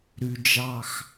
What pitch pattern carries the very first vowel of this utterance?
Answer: low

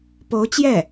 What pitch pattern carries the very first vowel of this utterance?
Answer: rising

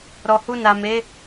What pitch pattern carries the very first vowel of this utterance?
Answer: low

